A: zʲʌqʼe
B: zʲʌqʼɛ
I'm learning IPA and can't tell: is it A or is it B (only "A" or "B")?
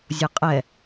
B